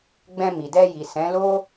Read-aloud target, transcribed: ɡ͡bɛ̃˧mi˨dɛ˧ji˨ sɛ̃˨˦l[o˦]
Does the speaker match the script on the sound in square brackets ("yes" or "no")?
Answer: yes